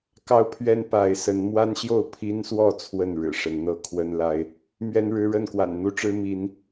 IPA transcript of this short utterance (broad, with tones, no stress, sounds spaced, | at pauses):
k ɑ˦ ʊ̯ pʰ ɥ ɛ˦ n p a˨˦ ɪ̯ s ə˨˦ n m w a˦ n ɕ j o˥˨ ʊ̯ pʰ i˦ n s w ɔ˥˨ t͡sʰ w ə˥˨ n ɻ ɻ̩˨˩ ʂ ə˨˦ n n̪ ɤ˦ kʰ w ə˦ n l a˦ ɪ̯ | m ɥ ɛ˦ n ɻ ɻ̩˦ ɻ ə˥˨ n k w a̰˨˩ n n̪ u˦ ʈ͡ʂ ɻ̩˦ m i˨˦ n